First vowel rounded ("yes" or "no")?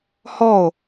yes